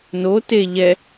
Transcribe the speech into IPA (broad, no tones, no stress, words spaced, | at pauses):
no te ʎɛ